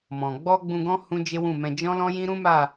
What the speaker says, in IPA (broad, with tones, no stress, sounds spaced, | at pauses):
m ɔ̃˨ ɡ͡b ɔ˧ ɡ͡b ũ˧ ɡ ɔ̃˦ h ũ˦ d͡ʒ e˦ w ũ˦˨ m ɛ̃˧ d͡ʒ ɔ̃˦ l ɔ̃˦ j ĩ˦ ɾ ũ˦ m a˦˨